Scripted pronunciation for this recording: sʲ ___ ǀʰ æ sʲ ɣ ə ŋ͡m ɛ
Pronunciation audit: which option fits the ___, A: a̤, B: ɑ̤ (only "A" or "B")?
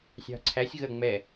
B